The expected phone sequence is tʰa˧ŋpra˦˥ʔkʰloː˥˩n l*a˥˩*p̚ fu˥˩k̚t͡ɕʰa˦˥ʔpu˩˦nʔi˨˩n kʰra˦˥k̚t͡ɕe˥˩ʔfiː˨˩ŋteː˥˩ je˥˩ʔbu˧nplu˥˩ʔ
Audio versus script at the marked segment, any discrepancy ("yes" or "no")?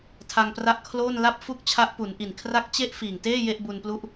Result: no